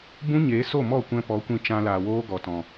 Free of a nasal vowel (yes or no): no